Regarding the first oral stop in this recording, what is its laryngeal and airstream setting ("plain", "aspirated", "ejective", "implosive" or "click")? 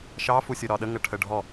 implosive